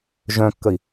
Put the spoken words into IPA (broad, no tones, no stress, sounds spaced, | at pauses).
ʒ œ̃ kː ə i̯